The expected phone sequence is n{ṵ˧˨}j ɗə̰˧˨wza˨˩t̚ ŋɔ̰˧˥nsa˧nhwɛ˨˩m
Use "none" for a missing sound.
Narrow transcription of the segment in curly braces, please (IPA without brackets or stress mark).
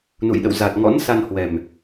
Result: ṵ˧˨